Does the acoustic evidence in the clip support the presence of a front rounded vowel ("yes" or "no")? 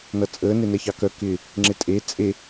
yes